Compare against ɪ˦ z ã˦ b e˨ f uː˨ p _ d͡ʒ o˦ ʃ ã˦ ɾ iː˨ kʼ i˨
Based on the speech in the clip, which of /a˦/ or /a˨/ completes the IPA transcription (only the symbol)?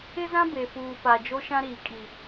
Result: a˨